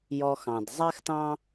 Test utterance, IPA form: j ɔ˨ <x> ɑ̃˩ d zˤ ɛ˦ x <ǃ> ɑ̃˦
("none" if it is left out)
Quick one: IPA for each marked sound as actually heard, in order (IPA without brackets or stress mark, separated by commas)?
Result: x, t